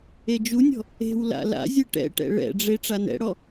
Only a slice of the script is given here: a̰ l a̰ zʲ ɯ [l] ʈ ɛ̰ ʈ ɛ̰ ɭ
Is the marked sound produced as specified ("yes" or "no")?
no